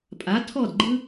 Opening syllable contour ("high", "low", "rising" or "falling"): rising